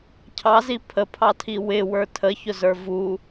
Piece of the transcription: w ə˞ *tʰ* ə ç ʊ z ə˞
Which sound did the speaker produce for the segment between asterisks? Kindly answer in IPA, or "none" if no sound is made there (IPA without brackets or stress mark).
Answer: tʰ